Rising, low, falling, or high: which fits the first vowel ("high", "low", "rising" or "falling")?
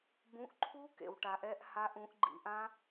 rising